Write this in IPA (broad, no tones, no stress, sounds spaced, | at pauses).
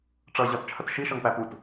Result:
ʈ͡ʂ ʌ ʑ ɒ t t͡ʃʰ ə t ʃ i ʃ ʌ ŋ p æ p u t